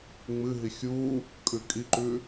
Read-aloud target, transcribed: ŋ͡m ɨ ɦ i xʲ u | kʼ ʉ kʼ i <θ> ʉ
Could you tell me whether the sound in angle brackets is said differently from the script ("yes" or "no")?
yes